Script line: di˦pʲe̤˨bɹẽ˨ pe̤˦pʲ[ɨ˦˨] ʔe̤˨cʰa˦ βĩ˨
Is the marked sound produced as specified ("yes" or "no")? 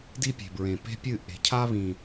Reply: yes